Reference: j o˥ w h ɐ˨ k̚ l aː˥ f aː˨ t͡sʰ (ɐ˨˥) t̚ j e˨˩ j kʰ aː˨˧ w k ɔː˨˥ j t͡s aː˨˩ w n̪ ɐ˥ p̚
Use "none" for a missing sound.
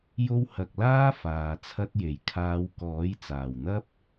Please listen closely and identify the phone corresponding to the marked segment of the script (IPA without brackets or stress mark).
ɐ˥